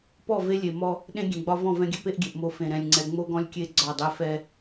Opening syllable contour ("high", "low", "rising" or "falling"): falling